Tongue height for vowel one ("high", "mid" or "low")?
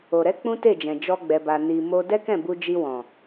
mid